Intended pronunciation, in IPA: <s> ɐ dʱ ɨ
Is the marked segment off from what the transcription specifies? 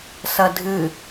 no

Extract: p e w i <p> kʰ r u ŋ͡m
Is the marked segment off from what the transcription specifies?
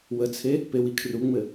yes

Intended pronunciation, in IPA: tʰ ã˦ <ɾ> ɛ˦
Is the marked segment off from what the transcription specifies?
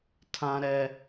no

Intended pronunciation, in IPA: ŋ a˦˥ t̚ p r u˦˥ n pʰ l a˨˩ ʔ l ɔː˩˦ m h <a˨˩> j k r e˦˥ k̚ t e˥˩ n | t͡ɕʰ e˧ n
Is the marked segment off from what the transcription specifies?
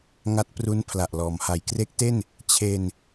yes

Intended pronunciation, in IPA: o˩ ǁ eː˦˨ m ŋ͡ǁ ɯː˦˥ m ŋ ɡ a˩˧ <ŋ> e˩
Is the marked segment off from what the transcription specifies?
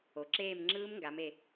yes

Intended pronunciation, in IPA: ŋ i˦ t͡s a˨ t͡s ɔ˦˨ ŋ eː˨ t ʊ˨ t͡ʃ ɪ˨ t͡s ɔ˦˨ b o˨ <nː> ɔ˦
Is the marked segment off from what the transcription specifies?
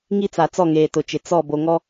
yes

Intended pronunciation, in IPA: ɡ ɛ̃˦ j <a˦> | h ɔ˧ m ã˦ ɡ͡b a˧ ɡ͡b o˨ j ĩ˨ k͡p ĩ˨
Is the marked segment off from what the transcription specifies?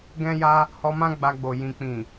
no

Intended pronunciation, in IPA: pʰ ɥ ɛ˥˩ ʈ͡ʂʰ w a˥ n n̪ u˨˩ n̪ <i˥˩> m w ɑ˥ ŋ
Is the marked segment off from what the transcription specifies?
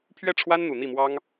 no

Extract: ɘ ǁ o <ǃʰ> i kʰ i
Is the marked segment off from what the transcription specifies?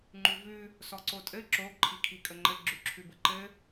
no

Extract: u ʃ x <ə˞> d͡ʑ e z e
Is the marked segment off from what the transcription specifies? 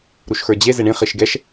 no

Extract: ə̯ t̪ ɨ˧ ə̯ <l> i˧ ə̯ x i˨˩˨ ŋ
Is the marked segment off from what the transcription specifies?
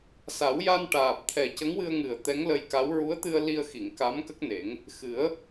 no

